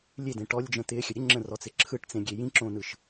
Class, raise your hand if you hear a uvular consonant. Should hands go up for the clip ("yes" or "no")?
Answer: no